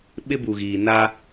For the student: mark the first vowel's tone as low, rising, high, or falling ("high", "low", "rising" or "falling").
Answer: high